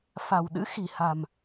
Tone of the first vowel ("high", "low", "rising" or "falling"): low